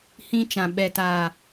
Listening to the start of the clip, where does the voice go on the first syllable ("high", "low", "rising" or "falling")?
high